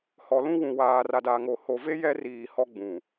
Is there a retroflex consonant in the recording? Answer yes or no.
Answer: no